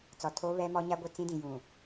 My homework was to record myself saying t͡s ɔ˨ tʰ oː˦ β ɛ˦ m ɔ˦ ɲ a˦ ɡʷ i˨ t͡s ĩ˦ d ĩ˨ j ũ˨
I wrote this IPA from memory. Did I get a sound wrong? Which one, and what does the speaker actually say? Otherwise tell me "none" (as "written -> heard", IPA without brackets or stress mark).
none